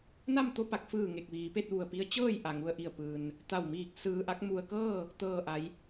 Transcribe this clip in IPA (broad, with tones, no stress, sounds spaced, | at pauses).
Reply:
n a˥˨ m t̪ o˥˨ p a˧ k̚ f ɯː˧˩ ŋ e˧˩ k̚ ʋ iː˩˧ p e˥˨ t̚ ʋ u˧˩ ə̯ p i˧˥ ə̯ t͡ɕ ɤː˥˨ j ʔ a˩ ŋ u˧ ə̯ ʔ i˧˩ ə̯ p ɯː˩ n | t̪ a˧˩ w m iː˧˩ k̚ s ɯː˧ ʔ a˧˥ k̚ m u˧ ə̯ k ɤː˥˨ | t̪ ɤː˧˩ ʔ a˩˧ j